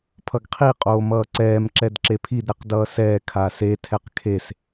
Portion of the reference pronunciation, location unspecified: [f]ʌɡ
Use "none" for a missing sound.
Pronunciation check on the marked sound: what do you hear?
pʰ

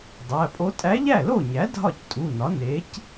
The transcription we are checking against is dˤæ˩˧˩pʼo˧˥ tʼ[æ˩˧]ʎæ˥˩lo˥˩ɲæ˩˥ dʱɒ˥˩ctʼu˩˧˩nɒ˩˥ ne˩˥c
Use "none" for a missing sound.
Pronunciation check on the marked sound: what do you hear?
æ˧˥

